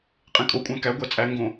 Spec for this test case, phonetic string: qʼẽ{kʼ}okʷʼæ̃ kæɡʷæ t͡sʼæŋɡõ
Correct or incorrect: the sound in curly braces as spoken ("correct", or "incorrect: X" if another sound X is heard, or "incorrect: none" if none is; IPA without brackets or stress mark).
correct